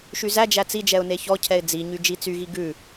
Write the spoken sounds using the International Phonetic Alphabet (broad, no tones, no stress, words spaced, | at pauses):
ʃyzæd͡ʒæ t͡sid͡ʒɛʊ̯ neçɔcʰɛɪ̯ d͡ziɲy d͡ʒit͡syɣi ɡʉ